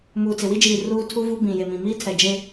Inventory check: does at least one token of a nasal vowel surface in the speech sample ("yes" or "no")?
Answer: yes